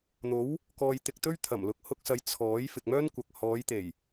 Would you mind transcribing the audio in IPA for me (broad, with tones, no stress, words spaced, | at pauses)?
n̪o˨˥w | kɔː˨j t̪ɪ˧k̚t̪ɵ˥ɥ t̪ʰɐ˨˩mlʊ˨k̚hʊ˧k̚sɐ˨˧j t͡sʰɔː˨˥j fɪ˨k̚mœː˥nkʷɐ˨k̚ hɔː˨˧jt̪e˨˩j